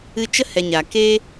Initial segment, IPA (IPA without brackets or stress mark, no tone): ɨ